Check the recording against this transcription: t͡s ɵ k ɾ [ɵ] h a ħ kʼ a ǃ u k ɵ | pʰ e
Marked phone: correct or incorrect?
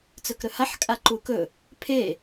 correct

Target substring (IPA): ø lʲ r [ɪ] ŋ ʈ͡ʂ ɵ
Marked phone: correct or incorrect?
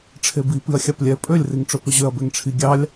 incorrect: i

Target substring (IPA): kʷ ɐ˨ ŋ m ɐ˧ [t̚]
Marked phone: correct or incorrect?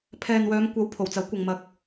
incorrect: k̚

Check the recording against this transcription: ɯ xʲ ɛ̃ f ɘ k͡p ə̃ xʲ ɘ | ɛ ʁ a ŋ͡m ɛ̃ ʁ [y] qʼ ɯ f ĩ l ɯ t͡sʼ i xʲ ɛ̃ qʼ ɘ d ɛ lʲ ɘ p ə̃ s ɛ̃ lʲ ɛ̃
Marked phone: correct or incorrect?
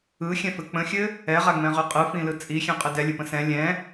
correct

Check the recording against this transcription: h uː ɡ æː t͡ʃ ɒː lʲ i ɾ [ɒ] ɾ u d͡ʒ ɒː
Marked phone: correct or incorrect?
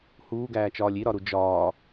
correct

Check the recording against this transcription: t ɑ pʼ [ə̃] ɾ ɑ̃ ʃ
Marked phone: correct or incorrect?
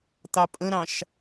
correct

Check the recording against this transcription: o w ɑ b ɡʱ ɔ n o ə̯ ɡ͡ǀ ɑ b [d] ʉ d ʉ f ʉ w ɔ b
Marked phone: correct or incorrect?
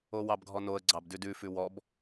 correct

